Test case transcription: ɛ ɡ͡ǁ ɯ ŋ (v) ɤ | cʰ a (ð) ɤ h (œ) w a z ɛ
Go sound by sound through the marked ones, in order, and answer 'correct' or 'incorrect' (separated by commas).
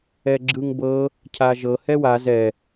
incorrect, incorrect, incorrect